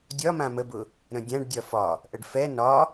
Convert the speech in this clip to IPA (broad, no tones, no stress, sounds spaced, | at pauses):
dʲ ɒ m ã m ə b ʊ | ɾ ə̃ dʲ ã ɖ dʲ ɒ f ɒ | ʔ ə ɖ f ɛ n ɒ